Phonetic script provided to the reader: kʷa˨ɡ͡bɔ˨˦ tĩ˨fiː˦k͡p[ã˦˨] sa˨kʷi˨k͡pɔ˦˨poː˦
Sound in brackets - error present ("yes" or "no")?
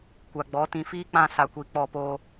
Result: no